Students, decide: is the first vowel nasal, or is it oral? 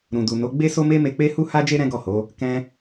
nasal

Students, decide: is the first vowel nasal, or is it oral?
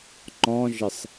nasal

